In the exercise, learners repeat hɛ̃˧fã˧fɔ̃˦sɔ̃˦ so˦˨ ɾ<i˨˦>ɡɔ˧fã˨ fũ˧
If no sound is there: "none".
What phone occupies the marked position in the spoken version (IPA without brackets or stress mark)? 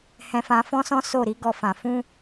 i˨˦